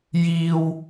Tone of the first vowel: high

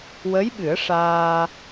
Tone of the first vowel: rising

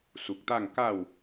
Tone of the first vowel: low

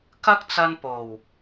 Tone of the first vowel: high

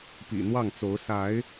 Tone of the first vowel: low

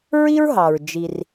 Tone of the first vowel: high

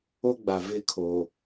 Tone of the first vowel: high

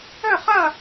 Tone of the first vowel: falling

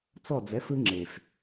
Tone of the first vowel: falling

